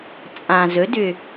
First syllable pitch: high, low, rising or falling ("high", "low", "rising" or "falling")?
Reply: low